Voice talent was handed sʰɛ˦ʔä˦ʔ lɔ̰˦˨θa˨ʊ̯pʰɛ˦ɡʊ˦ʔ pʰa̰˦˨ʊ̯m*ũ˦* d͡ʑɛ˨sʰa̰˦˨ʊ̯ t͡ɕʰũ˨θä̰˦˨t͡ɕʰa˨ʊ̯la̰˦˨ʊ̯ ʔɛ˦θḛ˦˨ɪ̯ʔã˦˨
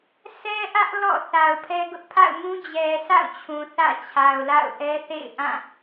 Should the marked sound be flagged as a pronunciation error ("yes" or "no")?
no